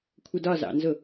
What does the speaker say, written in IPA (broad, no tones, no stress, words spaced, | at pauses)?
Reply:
kʷʰədɒzɑ̰nzʊ